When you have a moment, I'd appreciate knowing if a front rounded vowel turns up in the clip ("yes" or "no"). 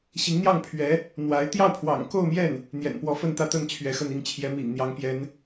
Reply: no